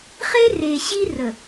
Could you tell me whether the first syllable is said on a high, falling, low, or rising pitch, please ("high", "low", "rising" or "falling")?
high